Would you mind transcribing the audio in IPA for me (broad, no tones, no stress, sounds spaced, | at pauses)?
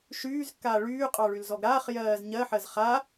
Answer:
ʃ yː z kː aː ɭ yː qʼ ɑ ɭ y l z ɔ ɡ ɾ aː χ j ɜː z ɲ ɜ ħ ɜ z χ a